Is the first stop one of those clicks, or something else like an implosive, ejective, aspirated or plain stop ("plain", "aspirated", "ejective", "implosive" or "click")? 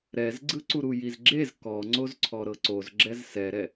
click